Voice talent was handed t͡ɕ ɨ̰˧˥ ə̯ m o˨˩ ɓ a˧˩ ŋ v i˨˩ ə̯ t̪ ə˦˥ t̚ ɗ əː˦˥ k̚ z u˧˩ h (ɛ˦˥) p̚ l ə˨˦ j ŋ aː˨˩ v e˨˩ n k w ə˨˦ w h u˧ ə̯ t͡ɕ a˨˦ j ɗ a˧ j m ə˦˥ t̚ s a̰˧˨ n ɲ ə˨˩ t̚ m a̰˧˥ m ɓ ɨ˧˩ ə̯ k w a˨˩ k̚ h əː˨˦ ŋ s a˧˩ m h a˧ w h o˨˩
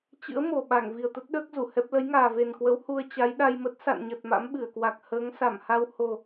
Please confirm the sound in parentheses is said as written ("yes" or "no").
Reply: yes